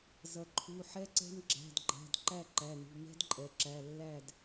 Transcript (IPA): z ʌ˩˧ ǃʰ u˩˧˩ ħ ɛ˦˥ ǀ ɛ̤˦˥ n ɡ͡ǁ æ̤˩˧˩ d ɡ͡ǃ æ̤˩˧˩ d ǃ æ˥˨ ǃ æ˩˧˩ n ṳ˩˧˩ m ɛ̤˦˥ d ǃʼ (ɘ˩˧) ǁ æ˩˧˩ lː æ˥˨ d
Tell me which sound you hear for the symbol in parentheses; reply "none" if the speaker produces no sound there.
ɛ˩˧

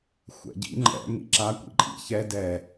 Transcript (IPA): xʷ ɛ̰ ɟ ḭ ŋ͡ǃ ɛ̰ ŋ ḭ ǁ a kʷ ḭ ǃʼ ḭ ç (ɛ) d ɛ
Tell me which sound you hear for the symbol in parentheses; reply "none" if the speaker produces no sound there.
ɛ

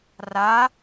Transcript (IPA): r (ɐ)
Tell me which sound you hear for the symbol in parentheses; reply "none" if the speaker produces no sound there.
a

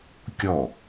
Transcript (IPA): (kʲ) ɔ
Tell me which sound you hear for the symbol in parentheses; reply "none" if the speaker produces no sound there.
kʲ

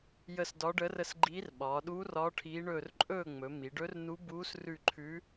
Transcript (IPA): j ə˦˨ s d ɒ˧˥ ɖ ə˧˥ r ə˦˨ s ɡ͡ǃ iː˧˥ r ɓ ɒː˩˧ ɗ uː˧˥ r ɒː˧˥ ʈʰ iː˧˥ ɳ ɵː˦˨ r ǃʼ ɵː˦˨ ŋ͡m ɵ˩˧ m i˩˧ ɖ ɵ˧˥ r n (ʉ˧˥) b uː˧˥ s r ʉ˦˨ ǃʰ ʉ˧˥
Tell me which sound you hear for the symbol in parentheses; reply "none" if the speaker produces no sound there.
u˧˥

